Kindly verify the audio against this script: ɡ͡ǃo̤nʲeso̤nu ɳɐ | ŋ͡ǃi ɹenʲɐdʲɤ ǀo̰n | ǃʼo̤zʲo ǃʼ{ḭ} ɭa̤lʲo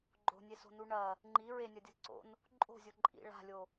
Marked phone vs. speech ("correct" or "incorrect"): correct